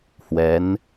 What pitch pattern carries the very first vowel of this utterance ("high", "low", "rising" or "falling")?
rising